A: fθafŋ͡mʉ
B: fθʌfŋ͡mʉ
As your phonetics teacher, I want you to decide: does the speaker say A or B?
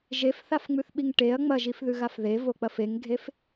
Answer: A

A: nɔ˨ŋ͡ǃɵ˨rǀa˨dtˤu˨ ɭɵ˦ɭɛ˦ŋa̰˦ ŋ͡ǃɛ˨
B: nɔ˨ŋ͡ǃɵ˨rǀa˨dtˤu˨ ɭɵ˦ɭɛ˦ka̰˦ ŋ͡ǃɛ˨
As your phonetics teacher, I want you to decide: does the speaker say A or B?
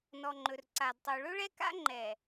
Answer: B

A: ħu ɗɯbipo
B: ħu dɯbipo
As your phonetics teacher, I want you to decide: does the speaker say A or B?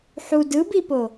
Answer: B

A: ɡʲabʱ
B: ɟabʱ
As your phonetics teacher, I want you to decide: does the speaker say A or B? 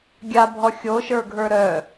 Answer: A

